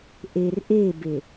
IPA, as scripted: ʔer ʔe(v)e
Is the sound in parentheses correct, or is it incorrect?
incorrect